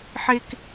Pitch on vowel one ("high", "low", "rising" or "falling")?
high